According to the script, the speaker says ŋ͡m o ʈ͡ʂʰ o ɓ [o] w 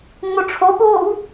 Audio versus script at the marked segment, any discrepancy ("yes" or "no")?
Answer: yes